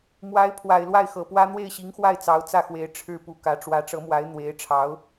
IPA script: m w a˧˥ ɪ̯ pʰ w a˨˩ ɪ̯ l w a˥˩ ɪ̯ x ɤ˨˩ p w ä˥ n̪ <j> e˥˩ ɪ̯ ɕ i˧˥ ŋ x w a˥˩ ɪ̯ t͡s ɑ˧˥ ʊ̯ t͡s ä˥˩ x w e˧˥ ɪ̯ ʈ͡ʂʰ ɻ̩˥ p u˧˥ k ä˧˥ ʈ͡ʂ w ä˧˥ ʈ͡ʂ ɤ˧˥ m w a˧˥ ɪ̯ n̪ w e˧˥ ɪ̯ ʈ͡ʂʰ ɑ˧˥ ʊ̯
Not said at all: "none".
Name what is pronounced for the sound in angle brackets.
w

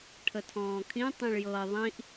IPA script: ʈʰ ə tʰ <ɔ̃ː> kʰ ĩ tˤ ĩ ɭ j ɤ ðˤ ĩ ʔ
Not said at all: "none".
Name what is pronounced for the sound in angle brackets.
ɔ̃ː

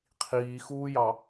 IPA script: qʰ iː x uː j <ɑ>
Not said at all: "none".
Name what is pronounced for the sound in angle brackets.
ɑ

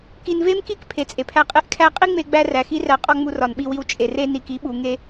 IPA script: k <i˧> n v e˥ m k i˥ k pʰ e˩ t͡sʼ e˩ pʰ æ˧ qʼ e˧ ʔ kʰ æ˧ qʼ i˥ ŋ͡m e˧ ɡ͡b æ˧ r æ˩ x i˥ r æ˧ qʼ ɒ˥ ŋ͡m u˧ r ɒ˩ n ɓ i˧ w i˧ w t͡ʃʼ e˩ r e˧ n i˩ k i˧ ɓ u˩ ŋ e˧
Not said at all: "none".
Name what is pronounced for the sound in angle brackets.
i˧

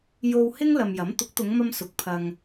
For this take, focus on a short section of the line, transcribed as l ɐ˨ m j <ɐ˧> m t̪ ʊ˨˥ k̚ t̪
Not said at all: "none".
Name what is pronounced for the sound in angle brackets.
ɐ˨˥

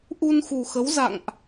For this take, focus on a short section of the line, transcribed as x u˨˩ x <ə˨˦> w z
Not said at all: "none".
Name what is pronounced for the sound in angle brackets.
ə˨˦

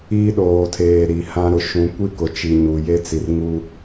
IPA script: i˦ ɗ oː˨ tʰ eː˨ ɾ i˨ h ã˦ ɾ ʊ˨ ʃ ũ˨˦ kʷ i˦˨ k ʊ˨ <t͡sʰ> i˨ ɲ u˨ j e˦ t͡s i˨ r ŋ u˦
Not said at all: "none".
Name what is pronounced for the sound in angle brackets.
t͡ʃ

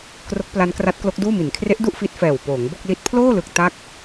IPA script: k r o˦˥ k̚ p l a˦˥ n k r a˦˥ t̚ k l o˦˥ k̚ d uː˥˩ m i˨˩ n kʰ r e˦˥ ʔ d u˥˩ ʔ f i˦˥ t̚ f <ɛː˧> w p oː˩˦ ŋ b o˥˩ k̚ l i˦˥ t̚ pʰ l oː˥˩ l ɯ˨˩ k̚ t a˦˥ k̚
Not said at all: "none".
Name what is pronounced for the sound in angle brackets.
ɛː˨˩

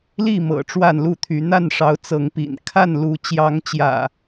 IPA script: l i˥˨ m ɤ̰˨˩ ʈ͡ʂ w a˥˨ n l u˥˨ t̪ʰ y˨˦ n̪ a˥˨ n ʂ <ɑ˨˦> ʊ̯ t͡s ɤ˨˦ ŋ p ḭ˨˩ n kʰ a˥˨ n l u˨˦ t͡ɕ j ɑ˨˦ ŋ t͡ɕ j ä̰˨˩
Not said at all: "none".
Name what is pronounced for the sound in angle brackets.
ɑ˨˦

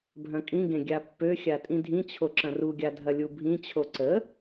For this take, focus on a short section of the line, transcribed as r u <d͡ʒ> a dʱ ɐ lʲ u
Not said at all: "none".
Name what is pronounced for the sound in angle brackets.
ɡʲ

